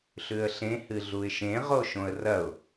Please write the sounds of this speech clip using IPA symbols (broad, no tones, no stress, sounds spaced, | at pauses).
ɬ ʉ ə̯ ɬ ẽ h ɨ ɮ u ɪ̯ ʃ ẽ ʁ o ʃ õ ə̯ r ɐ ʊ̯